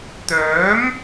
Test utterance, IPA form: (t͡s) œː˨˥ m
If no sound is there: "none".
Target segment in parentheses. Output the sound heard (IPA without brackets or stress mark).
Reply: t̪